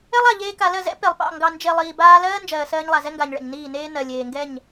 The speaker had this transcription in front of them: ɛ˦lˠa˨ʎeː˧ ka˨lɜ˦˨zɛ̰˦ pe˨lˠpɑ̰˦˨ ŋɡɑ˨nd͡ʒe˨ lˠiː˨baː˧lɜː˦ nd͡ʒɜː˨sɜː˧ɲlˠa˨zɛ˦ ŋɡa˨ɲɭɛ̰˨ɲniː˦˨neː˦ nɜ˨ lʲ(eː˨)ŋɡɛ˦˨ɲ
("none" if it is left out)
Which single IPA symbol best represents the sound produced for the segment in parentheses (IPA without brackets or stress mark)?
eː˨